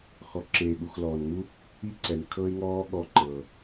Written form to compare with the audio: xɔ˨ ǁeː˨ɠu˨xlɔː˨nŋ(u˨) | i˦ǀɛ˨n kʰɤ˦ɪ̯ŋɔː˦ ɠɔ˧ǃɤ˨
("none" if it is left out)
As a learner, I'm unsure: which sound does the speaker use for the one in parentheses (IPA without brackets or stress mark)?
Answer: u˦